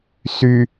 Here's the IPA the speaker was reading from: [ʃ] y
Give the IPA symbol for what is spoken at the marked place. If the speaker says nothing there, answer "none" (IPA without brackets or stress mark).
s